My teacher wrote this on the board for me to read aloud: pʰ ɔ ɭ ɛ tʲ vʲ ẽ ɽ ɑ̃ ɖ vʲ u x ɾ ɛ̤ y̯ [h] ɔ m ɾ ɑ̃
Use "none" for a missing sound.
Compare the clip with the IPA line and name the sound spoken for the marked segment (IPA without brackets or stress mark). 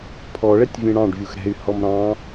h